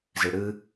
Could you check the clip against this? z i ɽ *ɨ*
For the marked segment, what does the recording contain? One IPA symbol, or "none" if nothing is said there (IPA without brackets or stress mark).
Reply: ɨ